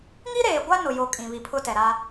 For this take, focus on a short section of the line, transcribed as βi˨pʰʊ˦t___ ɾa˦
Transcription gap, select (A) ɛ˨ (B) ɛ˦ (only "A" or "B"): A